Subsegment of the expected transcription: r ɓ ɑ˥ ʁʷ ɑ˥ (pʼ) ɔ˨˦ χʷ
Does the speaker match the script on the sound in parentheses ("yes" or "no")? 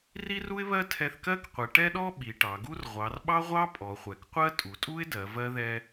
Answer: yes